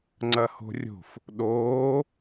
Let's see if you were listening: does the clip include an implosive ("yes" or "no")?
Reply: yes